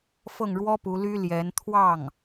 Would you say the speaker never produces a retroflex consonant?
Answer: no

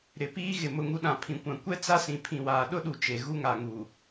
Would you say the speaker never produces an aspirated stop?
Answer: no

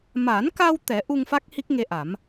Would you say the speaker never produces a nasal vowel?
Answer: yes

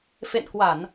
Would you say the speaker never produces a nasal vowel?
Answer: yes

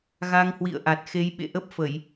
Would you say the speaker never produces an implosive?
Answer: no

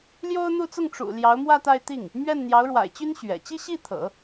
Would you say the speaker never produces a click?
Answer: yes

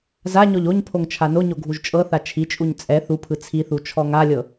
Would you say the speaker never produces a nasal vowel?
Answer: yes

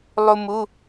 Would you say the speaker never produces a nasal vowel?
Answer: yes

